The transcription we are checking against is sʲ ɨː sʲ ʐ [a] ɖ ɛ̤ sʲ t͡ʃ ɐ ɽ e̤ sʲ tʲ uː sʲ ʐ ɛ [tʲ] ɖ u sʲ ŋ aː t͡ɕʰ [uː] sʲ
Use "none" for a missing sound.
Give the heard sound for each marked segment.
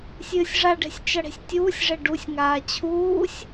a, none, uː

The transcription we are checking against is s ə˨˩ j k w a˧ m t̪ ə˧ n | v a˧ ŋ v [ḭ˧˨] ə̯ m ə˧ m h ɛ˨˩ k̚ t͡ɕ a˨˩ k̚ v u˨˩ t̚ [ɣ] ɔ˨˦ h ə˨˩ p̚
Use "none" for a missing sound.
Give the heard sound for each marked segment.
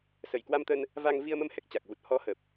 i˧, h

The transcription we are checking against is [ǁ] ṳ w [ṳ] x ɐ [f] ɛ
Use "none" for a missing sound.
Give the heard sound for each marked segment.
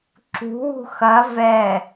ǁ, ṳ, v

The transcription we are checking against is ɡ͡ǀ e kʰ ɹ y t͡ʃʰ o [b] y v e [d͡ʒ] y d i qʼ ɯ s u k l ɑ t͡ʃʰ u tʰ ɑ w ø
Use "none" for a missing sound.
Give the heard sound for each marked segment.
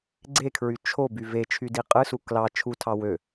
b, t͡ʃʰ

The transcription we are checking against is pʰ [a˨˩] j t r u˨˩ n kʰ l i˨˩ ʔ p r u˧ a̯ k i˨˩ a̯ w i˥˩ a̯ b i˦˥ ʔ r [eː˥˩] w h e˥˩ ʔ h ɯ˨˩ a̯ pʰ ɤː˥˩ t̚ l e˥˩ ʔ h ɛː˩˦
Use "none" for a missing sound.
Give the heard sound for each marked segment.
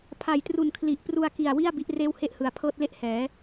a˨˩, eː˥˩

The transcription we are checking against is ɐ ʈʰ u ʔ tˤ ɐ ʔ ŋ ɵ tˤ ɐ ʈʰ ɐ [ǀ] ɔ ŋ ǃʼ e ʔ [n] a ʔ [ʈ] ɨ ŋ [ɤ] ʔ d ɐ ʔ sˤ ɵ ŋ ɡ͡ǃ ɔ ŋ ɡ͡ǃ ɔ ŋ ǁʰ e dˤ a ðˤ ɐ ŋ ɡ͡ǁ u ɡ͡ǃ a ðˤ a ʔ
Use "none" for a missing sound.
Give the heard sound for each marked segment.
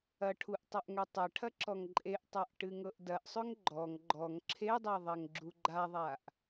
ǁ, tˤ, ʈ, ɤ

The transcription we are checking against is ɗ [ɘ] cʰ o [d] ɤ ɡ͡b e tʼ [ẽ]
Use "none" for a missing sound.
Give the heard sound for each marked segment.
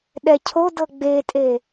ɛ, d, e

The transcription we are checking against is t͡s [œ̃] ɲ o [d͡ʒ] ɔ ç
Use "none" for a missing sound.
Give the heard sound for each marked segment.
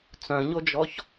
œ̃, d͡ʒ

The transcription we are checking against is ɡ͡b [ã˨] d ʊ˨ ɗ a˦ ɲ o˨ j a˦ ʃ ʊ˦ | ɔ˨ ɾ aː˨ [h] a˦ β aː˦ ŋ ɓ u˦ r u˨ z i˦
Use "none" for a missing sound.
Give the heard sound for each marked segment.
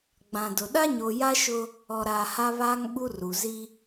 ã˨, h

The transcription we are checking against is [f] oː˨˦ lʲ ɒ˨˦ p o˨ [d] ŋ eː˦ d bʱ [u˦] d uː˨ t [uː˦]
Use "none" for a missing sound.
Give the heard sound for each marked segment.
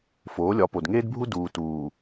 f, d, u˦, uː˨

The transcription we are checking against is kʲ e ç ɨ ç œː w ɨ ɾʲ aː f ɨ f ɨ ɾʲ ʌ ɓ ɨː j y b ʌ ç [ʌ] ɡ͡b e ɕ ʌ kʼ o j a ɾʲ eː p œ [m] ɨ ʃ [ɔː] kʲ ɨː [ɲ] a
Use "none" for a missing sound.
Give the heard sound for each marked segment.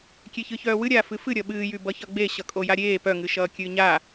ʌ, ŋ, ʌː, ɲ

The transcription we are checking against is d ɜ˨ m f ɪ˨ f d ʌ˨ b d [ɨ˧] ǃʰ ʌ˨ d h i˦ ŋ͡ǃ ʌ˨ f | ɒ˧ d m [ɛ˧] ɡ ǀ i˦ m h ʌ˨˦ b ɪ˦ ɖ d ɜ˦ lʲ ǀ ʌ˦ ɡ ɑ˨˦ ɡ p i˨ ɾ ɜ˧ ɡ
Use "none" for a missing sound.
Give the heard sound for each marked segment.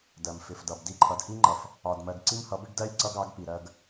i˧, ɜ˧

